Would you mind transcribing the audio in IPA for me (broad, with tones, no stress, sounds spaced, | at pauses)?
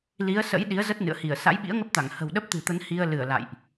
l i˨˦ ə̯ s ə̰˧˥ j ɗ i˨˦ ə̯ z ə˦˥ t̚ n ɨ̰˧˨ ə̯ h i˧˩ ə̯ s a̰˧˥ j ɓ ḭ˧˥ ə̯ ŋ ə˦˥ p̚ t̪ a˧˩ ŋ h ə̤˨˩ w ɗ ə˦˥ p̚ t̪ ɨ̤˨˩ t̪ ə˨˦ n h i˧ ə̯ l ɨ˧˩ ə̯ l a̰˧˨ j ʔ